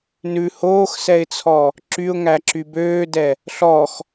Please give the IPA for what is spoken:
n ʉ h oː x s ɛ ɪ̯ t͡sʰ ɔ | ǁ y ʊ̯ ŋ æ ǁ y b øː d ɛ | ɬ ɔ x

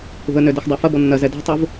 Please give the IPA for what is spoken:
ṳ ə̯ n ø d ɛ x dˤ a f ɐ b ɔ nː ɐ z ɛ d a̤ tˤ u v

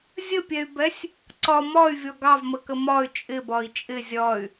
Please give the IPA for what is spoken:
zʲ ə pʲ ɛ y̯ b ɛ sʲ | ǀ ɒ m ɒ y̯ vʲ ɔ ɡ ɑ v m ə k ə m ɒ y̯ t͡ʃʼ ɪ b ɒ i̯ t͡ʃʼ ɪ zʲ ɒ y̯

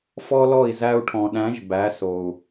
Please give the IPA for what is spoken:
f ɔ˦ l ɔ˦˨ i̯ z æ˧ u̯ ʈʰ ɔ̃˨ ɗ æ̃˨˦ ʒ b æ˨˦ s o˨ u̯

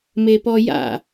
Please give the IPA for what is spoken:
m e p ɔ j a̰

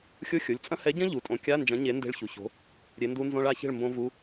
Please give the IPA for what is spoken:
xʲ o˧˥˧ xʲ o˩˧˩ lʲ t͡sʼ ɐ̃˦˥ h ɛ˨˥ ɟ ɐ̃˦˥ ʎ u˩˧˩ tʼ õ˨˥ kʲ a˧˥˧ n d͡ʒ ɐ̃˨˥ ɲ e˨˥ n d e̤˦˥ ɭ ç u˩˧˩ ç o̤˨˥ | ɾʲ e˨˥ n d u˦˥ n z õ˦˥ ɭ a˨˥ ç e̤˥˨ ɭ m b õ˦˥ v u˧˥˧

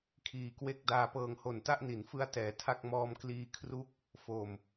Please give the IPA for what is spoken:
kʰ iː˨˩ k w e˥˩ k̚ d aː˧ p ɤː˧ ŋ h o˨˩ n t a˥˩ ʔ n i˩˦ n f ɯ˦˥ a̯ t ɛː˩˦ tʰ a˥˩ k̚ m ɔː˧ m k l iː˧ kʰ r u˦˥ k̚ | f o˨˩ m

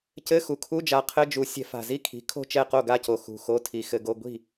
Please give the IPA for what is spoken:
c ɘ˧˥˧ x u˨˩ kʰ u˧˥˧ d͡ʒ a˨˦ qʰ ɘ˧˥˧ d͡ʒ u˨˩˦ sʲ ɛ̤˨˦ f a̤˨˩ z i˥˨ kʰ i̤˨˦ kʰ o̤˥˨ t͡ʃ ɛ˥˨ q o˥˨ ɡ a˥˨ c o˨˩ x ṳ˨˩ x o˧˥˧ tʰ i˨˦ x ɘ˨˦ ɡ o˧˥˧ ɡʷ i̤˥˨

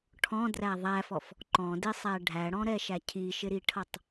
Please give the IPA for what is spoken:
ʈʰ ɔ̃ d r æ ðˤ æ f ɔ f | ǃ ɔ̃ d ɪ sˤ æ ɖʱ æ ɽ ɔ̃ ɾ ɛ ʃ æ cʰ i ʃ ɪ ɾ i ʈʰ ʌ tˤ

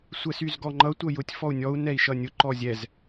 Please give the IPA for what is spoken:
sʷ ɛ s y z ɡ ɔ ŋ͡ǃ ʌ tʷ ʌ j ʊ tʲ f ɔ u̯ nʲ ɔ u̯ n ɛ i̯ ʃ ʌ nʲ ʊ ǃ ɔ zʲ ɛ z

